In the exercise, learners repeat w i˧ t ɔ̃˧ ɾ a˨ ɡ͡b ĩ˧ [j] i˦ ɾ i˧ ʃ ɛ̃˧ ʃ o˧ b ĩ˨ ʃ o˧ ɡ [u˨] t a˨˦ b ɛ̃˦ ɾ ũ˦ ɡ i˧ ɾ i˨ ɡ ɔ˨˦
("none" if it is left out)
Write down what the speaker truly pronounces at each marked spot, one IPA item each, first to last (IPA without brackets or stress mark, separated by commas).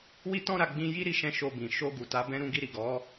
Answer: j, u˨